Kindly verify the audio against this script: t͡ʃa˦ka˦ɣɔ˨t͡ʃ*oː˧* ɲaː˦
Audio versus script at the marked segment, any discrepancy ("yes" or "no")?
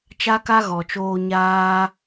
no